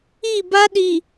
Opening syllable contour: falling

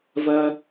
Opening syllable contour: low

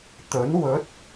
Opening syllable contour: rising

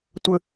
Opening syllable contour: high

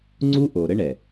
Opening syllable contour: high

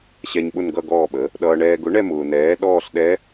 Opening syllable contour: low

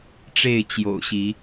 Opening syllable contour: falling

